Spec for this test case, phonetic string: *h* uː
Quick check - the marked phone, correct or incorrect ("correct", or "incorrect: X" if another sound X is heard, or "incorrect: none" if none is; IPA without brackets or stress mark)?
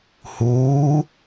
correct